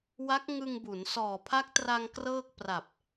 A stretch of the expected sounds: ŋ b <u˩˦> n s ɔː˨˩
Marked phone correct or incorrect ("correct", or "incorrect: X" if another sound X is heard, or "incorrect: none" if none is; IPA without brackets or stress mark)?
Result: correct